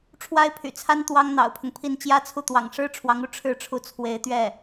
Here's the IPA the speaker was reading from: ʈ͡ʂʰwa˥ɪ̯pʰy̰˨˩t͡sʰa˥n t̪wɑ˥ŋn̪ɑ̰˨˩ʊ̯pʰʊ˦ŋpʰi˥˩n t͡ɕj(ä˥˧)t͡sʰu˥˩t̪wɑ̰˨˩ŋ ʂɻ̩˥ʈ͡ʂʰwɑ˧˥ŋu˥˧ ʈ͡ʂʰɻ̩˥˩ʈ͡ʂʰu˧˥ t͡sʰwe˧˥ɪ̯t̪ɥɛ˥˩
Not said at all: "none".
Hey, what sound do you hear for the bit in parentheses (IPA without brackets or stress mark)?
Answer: ä˥